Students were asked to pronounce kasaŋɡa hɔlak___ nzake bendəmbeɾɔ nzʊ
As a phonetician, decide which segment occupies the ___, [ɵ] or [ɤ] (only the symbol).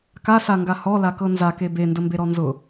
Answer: ɤ